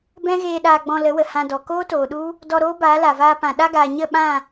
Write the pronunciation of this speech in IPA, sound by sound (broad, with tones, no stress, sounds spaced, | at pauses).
b ɛ̃˦ ɣ eː˧ ɗ aː˧ ɡ͡b ɔ̃˧ l ə˨˦ w ə˨ h ã˧ d ɔ˨ k oː˦ t oː˨ ɗ u˦ | d ɔ˧ ɾ oː˦ b aː˨˦ l a˨ v aː˧ p ã˨ ɗ a˧ ɡ aː˨ ɲ ə˦˨ ɓ ã˦˨